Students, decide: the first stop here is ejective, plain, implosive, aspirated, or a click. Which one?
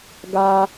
plain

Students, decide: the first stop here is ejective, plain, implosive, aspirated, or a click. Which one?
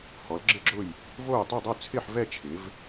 click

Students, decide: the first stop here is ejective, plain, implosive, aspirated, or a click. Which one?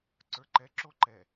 click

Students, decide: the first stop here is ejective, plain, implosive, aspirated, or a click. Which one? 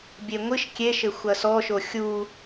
plain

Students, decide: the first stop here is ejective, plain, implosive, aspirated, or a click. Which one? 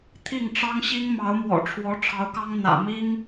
aspirated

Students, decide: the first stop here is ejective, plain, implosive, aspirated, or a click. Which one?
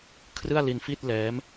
aspirated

